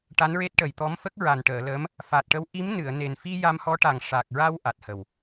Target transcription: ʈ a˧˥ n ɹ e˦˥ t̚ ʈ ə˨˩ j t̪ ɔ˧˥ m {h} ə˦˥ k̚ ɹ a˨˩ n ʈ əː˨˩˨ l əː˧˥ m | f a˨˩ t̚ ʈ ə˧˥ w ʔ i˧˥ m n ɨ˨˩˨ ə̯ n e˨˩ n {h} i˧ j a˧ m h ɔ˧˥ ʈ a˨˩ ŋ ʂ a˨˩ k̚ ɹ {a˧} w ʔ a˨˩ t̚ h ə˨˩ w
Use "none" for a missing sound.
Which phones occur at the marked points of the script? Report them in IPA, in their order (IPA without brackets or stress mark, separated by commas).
f, f, a˧